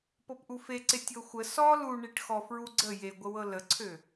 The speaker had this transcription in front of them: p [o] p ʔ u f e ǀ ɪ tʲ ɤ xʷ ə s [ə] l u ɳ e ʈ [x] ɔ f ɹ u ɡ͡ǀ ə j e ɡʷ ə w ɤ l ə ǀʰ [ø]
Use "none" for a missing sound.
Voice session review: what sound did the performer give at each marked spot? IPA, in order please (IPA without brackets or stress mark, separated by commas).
ɤ, ɔ, x, ø